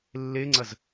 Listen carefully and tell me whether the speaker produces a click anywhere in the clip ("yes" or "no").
yes